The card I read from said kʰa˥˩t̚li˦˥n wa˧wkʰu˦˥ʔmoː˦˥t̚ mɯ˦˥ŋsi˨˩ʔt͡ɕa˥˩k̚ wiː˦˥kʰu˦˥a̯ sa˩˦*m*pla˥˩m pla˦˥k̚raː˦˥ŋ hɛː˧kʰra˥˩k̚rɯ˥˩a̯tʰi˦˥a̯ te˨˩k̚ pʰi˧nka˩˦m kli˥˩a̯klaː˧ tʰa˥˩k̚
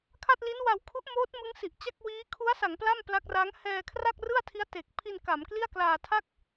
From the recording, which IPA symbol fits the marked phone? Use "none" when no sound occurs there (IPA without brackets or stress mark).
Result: ŋ